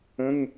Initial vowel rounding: unrounded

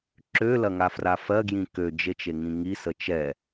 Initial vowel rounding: rounded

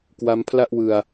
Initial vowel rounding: unrounded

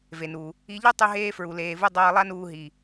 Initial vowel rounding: unrounded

